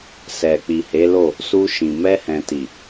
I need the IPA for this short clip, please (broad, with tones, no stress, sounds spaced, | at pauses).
s ɛ˨ k͡p i˨ h e˨˦ l o˦˨ | s u˧ ʃ ĩ˨ m ɛ˧ h ɛ̃˨ t i˨